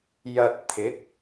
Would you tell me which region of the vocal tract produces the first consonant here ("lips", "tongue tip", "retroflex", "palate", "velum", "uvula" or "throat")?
palate